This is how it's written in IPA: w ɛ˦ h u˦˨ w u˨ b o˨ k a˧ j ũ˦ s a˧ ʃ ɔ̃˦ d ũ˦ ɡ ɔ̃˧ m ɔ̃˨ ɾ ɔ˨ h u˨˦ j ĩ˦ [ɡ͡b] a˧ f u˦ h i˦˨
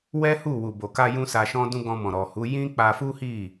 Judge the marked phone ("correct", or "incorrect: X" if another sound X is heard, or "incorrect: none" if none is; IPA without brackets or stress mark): incorrect: k͡p